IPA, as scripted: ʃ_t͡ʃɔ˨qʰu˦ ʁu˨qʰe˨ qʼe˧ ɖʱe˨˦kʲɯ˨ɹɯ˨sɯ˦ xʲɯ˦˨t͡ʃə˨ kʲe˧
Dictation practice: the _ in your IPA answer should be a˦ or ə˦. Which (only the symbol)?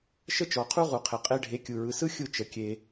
ə˦